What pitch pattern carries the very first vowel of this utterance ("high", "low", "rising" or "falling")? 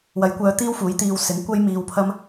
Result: rising